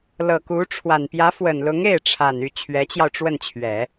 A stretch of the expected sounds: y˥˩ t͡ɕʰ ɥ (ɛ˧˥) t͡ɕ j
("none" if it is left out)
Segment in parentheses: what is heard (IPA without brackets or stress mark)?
ɛ˧˥